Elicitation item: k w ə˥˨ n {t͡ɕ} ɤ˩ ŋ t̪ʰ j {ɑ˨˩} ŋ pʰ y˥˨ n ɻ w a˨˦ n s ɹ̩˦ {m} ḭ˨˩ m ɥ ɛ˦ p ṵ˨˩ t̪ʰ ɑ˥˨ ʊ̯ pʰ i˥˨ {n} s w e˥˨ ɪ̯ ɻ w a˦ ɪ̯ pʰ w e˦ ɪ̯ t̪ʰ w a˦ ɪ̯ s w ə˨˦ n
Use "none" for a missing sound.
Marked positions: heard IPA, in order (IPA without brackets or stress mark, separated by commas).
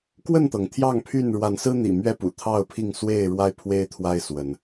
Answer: t̪, ɑ˥˨, n̪, ŋ